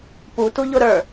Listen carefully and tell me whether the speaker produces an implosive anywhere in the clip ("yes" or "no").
no